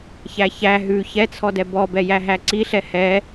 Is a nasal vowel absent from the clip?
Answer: yes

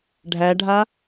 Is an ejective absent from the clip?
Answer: yes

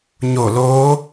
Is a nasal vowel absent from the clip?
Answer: yes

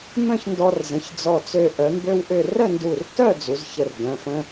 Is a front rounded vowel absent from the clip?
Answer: no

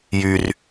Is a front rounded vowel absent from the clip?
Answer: no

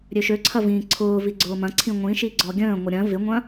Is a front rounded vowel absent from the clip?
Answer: no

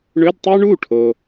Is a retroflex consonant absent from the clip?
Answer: no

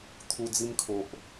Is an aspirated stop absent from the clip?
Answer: no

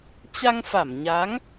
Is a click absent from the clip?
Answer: yes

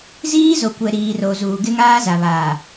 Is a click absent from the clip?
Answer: yes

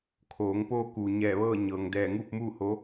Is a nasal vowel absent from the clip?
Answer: yes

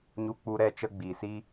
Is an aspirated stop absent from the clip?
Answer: yes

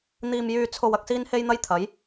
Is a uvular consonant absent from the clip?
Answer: yes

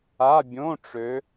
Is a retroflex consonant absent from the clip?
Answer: no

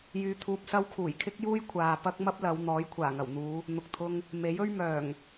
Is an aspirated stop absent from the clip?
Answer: no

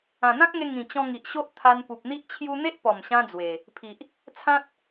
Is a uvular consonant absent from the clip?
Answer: yes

